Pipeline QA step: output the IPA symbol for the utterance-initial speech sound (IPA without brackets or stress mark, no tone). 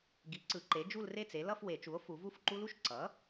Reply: ɡ